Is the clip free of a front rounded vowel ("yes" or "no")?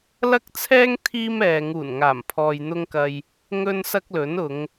yes